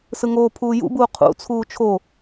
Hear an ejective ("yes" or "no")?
no